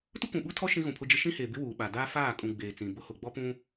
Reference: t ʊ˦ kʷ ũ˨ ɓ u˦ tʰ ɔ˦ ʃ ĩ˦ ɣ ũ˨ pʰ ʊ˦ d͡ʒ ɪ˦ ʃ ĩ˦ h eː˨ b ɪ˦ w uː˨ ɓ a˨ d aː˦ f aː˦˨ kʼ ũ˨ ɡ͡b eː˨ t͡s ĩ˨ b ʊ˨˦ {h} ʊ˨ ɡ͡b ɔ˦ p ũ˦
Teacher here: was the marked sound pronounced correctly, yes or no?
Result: yes